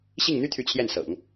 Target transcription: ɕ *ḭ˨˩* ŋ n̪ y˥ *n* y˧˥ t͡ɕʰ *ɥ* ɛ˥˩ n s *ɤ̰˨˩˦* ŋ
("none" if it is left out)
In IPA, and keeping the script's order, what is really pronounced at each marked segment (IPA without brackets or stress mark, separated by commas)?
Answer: i˥˩, t̪ʰ, j, ɤ̰˨˩˦